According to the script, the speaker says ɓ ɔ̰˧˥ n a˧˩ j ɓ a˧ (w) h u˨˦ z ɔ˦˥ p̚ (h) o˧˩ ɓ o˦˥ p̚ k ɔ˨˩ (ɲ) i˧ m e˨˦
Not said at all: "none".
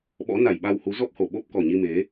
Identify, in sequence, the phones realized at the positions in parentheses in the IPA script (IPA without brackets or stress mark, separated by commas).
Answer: w, h, ɲ